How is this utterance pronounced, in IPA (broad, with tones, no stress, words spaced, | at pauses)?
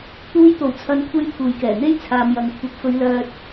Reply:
t̪uː˧jt̪o˨˩wt͡sʰɐ˨˧nkʷʰe˧j pʰuː˨jkɛː˨˩n̪e˥j t͡sʰaː˨m jɐ˨ŋkʷʰɐ˨˥p̚ fɵ˨˧ɥ lœː˧t̚